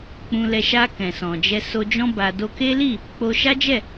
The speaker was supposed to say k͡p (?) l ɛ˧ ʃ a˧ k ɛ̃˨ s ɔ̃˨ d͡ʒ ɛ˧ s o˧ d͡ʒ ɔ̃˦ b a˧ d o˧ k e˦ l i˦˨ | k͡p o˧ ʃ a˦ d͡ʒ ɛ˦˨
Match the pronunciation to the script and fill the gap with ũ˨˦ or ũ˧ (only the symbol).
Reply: ũ˧